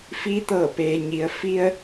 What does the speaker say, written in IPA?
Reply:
f i˧ t̪ ɤː˧˩ p eː˩ ɲ i˩ ə̯ f i˧ ə̯

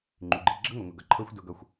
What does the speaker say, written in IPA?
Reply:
ŋ͡ǃ ʉ˨ ɡ͡ǃ e˨ ɡ͡ǁ ʌ˦ ŋ o˨ ŋ ʊ˨ ɡ ʌ˨ ǃʰ ɤ˦ xʷ d ʊ˦ ɡ ʌ˦˨ xʷ

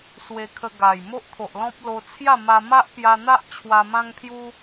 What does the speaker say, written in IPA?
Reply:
s w e˧ kʰ ə˧ ɡ a˨˩ j m o˦ ʔ t̪ʰ o˨ ʔ l ɔ̃˦ p̚ l o˧ t͡sʰ j a˥˧ m a˧ m a˦ ʔ p j a˧ n̪ a˦ ʔ t͡ɕʰ w a˦ m ã˦ ŋ pʰ j u˦

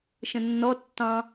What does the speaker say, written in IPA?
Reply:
ʃ ə̃ nː ɔ tː ɑ̃

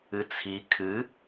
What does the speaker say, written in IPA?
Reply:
ɨ t͡sʰ i kʰ ɨ

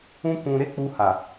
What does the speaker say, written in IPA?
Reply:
ũ˦ k ũ˧ ɾ e˦ k͡p u˧ h a˨

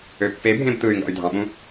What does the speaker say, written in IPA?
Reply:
ø pː e bʱ ẽ b t̪ ɯ y̯ ŋ ɡ ɑ̰ y̯ dʱ ɑ̃ ɓ ũ

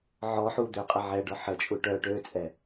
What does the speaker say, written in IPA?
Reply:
ʕ ɔ ħ u d̪ ø qʼ ə ʕ ɛ ɖ ɔ ħ ə t͡ʃʼ u ʈ œ ʈ ø t͡sʼ ɛ

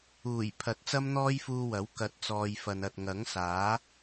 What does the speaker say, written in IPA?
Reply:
uː˨˩ j pʰ ɐ˨˥ t̚ t͡s ɐ˥ m n̪ ɔː˥ j f uː˧ w ɐ˨˥ w k ɐ˨˥ t̚ t͡s ɔː˨ j f ɐ˨ n ɐ˨ t̚ ŋ ɐ˨˥ ŋ s aː˨˥

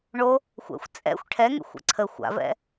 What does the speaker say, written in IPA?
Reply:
ɳ o | xʷ ɛ̰ xʷ t͡sʼ ɛ̰ xʷ ʈʰ ɛ ŋ ḛ xʷ ɛ̰ ǀʰ ə xʷ a̰ v ɛ̰

